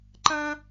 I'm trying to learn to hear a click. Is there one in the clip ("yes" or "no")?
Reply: yes